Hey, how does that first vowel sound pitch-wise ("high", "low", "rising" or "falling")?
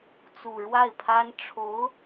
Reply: low